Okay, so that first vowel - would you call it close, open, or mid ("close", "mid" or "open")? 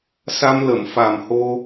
open